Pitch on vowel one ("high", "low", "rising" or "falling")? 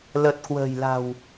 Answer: low